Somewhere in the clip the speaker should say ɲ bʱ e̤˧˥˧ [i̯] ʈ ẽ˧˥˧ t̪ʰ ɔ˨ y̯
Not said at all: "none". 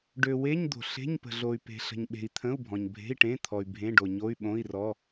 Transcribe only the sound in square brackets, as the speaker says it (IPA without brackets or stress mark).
i̯